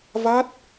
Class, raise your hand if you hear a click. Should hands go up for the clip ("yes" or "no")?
no